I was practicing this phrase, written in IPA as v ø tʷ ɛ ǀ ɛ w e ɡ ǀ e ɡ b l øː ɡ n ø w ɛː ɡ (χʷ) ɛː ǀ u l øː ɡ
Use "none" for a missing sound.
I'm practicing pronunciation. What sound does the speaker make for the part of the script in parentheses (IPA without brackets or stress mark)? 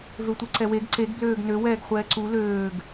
χʷ